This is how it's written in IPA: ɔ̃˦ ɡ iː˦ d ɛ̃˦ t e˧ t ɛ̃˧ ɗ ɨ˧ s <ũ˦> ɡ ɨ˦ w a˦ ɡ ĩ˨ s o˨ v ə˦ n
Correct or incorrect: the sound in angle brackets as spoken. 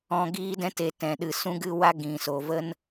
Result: correct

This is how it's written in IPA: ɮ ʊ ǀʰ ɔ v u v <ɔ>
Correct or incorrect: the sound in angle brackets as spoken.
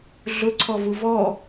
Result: correct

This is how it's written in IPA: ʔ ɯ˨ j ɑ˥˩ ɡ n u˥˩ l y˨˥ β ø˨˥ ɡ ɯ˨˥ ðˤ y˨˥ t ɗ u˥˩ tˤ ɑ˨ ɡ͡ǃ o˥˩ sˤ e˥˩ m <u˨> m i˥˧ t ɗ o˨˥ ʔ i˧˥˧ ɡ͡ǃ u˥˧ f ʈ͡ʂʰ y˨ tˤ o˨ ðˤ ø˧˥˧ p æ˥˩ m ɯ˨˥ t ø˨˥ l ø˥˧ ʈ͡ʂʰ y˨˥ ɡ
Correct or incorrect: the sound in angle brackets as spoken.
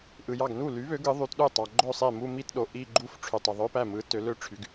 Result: incorrect: u˥˧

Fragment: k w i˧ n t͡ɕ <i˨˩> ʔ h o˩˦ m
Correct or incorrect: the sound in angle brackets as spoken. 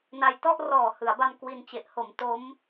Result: incorrect: e˨˩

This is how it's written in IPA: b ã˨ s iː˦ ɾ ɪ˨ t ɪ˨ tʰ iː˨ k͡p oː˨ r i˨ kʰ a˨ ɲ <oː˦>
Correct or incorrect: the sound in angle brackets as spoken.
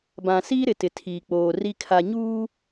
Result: incorrect: uː˦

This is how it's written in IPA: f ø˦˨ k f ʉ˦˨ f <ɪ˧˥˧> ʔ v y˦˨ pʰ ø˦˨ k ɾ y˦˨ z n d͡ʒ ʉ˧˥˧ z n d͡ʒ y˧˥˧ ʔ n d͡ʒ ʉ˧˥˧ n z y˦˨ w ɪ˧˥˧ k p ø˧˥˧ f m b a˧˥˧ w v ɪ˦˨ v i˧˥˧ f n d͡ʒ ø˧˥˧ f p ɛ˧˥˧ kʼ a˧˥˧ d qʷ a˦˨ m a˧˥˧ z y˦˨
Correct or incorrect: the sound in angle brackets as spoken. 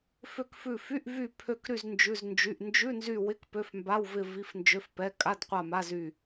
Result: incorrect: y˧˥˧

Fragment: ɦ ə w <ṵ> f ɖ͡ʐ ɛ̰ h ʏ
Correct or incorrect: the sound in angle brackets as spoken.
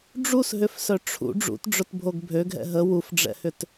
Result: incorrect: u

